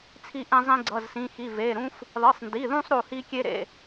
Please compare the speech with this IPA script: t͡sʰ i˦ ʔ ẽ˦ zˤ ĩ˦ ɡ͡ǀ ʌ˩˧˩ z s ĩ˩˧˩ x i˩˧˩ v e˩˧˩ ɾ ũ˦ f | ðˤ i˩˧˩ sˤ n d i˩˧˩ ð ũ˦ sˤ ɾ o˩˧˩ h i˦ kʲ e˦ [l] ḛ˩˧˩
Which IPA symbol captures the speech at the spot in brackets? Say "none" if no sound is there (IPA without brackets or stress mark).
ɾ